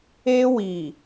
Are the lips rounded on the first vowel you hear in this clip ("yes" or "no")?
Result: no